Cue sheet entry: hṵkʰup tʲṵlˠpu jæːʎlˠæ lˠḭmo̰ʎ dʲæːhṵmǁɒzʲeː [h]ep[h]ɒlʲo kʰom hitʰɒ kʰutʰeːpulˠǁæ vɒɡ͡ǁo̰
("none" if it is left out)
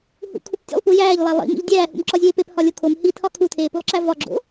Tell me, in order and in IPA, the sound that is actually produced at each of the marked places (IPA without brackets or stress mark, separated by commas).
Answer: p, h